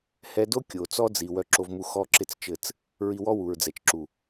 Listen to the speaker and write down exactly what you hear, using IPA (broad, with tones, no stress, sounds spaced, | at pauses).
h ɛ˧ d o˦ kʲ o˨ t͡s ɔ˦ d͡z i˨ w œ˧ ǁ o˧ v m u˧ x ɔ˦ ǁ ɪ˦ t͡s t͡ʃ ɘ˦˨ t͡s | ɹ i˧ w ɔ˦ w u˨ ɹ d͡z ɛ˨ t͡ʃ ǁ u˨